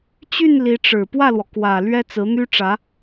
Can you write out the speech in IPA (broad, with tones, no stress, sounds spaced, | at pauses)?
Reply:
t͡ɕ y˥˩ n l i˧˥ ʈ͡ʂ ɻ̩˨˩ p w ä˥˩ l w ɔ˩ k w ä˨˩ l ɥ ɛ˥ t͡s ɹ̩˧˥ n̪ y˥ ʈ͡ʂ ä˧˥